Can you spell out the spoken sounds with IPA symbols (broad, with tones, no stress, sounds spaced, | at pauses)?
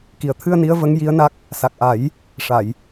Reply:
k i˨˩ ə̯ t̪ʰ ɨ˧ ə̯ n i˧˥ ə̯ v ə˧˥ ŋ j i˧˥ ə̯ n a˦˥ k̚ | s a˨˩ k̚ ʔ a˨˩˦ j | ʂ a˨˩˨ j